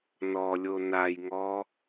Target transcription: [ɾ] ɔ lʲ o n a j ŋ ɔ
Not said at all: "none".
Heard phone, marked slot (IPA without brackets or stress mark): n